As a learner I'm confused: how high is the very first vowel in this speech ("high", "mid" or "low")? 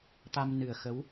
low